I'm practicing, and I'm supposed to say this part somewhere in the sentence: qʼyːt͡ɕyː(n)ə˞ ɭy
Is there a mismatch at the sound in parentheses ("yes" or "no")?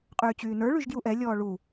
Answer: no